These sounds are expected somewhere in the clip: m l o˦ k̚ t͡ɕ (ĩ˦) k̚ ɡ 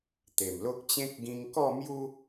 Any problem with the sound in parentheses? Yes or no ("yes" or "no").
yes